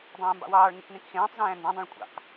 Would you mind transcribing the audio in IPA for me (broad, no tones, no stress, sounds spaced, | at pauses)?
dˤ ẽː m b ɑ̰ w ɑː ɭ ŋ e k n ẽ k x ẽː tˤ z æ̃ː n d æ̃ dˤ ẽ ɭ kʷʼ ɑ̰ k